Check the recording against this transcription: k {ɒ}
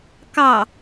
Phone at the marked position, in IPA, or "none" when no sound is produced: ɑ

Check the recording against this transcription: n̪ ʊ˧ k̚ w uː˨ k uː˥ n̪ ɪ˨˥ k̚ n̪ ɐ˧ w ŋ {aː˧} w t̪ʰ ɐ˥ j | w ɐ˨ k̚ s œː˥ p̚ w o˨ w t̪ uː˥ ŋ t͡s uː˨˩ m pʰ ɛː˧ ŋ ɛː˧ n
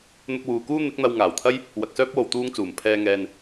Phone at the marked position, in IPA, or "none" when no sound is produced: aː˨˩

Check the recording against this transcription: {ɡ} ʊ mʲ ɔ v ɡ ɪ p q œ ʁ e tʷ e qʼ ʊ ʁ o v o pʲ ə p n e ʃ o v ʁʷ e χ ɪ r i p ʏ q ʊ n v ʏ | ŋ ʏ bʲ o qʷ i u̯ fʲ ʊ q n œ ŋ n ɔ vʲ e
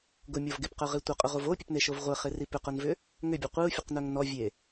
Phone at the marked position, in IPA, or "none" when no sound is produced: ɡ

